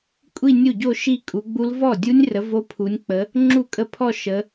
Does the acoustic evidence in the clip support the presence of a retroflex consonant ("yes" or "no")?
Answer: no